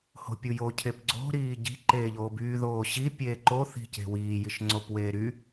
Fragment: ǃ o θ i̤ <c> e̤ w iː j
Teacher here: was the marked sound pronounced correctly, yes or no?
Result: yes